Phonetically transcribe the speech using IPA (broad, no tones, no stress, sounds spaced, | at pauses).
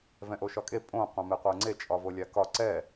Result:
v ɛ̃ ʔ o ʃ ɒ kʼ e pʼ õ qʷ ã m e qʷ ɜ ŋ͡ǀ e t͡ʃʼ ɒ v o lʲ a k ɒ ǀ ɛ